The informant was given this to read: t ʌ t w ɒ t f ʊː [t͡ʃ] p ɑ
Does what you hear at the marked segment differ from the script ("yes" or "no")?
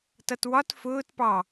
yes